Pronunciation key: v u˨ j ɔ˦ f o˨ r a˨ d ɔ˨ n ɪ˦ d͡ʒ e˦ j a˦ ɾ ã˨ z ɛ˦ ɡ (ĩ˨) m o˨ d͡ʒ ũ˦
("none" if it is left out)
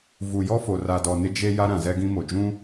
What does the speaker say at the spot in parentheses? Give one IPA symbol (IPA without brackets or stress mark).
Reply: ĩ˦